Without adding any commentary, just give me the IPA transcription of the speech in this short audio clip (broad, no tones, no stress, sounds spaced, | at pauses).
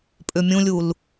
pʼ ʏ mʲ ũ lʲ u l